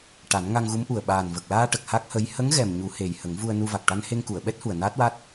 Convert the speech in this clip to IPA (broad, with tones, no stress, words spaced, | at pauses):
ʈa˨˩˦nŋa˧ŋɣu˧˥mʔu˨˩ə̯ ɓaː˨˩nvə˨˩k̚laː˧ʈə˨˩k̚ ha˦˥k̚hə˧˥j hə˧˥ŋɣɛ˨˩m ɲu˨˩˦he˨˩j hə˨˩˦ŋvu˧ə̯ nu˧va˨˩k̚ ʈa˧nhe˧ŋku˨˩˨ə̯ ɓɛ˦˥t̚hu˨˩ə̯ naː˦˥t̚wa˦˥t̚